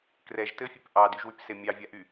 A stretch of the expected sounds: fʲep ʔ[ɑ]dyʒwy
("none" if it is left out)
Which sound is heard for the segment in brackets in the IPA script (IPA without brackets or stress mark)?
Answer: ɑ